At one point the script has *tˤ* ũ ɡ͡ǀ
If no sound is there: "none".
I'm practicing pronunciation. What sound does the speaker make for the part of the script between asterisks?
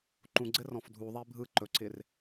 ǃ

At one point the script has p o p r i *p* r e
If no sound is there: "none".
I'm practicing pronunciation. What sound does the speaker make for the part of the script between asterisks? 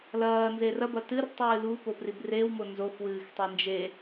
b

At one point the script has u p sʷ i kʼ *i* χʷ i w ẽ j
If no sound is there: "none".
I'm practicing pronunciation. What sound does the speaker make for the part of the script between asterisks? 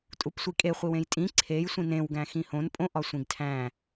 e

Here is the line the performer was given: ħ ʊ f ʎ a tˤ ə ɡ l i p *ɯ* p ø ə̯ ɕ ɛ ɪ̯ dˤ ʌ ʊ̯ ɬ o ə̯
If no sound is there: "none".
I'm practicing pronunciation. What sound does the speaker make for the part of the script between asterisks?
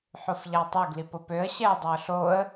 ʊ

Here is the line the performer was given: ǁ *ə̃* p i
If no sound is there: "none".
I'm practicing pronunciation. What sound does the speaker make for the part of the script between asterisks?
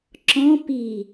ɔ̃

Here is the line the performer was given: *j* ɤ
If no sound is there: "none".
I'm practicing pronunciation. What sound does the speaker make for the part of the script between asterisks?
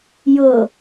j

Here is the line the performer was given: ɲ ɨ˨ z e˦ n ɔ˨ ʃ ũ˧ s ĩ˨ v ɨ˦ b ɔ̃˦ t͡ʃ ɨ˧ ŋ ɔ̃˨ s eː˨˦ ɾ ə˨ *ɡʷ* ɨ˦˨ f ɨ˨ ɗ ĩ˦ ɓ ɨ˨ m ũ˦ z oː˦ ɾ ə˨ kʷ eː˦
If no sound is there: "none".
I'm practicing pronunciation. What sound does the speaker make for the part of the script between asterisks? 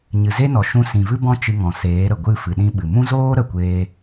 ɡʷ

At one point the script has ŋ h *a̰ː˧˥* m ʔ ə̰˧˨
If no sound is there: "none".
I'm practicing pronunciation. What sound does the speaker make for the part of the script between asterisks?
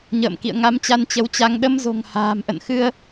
a̤ː˨˩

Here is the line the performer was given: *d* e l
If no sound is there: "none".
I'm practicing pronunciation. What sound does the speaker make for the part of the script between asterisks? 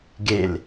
ɡ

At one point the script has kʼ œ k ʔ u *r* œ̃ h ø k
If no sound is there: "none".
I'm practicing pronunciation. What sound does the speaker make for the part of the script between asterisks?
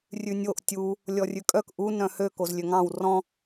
n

